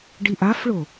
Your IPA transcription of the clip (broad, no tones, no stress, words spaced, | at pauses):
ɖiʔafɭo